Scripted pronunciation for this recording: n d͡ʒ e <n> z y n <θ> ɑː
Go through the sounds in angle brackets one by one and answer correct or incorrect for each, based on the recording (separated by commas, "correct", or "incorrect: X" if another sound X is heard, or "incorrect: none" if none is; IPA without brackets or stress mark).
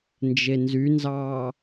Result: correct, incorrect: z